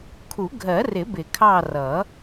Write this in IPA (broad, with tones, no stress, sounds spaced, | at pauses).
kʰ u˨˩˦ ɡʱ ɜ˨˩˦ r ɪ˨˩˦ b ɪ˨˩˦ kʰ ɑ˦˨ r ʌ˨˩˦